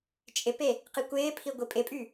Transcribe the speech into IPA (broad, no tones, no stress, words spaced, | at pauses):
t͡ʃʼɪpe | qikʷɪːpʰi ɡʷipʼɪpʼy